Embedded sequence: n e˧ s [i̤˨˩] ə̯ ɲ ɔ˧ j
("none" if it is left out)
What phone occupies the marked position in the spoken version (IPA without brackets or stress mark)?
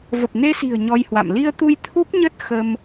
i̤˨˩